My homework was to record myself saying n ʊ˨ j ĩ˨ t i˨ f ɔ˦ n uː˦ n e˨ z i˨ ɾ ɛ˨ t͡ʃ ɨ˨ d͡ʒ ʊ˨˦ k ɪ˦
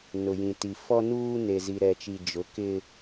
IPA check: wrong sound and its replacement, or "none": ɨ˨ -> i˨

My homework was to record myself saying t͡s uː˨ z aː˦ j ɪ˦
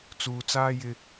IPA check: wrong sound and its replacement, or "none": z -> t͡s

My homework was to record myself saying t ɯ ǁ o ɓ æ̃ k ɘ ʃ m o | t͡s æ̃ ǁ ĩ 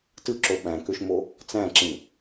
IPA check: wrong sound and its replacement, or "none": ɘ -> ø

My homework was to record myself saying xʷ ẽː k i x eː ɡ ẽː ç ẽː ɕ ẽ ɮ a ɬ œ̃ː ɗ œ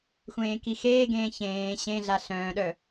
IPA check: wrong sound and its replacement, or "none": none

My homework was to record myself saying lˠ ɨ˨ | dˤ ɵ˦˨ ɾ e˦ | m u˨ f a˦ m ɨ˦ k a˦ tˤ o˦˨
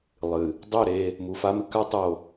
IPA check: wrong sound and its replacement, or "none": none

